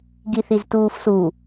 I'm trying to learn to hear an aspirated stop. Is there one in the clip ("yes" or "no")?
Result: no